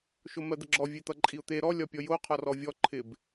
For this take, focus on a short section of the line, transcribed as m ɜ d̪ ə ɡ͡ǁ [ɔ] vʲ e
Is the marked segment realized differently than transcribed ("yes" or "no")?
no